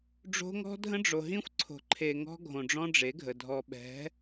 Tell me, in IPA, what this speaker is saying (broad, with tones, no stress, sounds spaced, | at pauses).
ɖ͡ʐ o̤˦ ŋ ɔ̤˦ dʱ ə̃˦ ɖ͡ʐ o˨ ɦ ĩ˦ xʷ ǀʰ o̤˨ ǃʰ e˨ ŋ ɔ̤˦ ɡʱ õ˨ ɖ͡ʐ ɔ̃˦ ɖ͡ʐ e˨˦ ɡʱ ə˨ dʱ ɔ˨ ɓ ɛ̤˨˦